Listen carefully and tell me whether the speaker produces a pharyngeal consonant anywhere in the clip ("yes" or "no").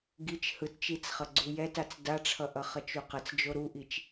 no